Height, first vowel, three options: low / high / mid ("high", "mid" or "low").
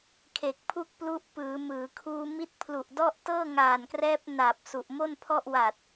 mid